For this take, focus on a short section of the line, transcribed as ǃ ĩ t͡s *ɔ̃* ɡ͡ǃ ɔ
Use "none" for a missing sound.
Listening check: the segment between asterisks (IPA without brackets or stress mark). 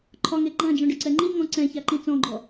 ɔ̃